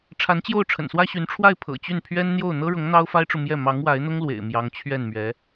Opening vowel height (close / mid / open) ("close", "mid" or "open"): open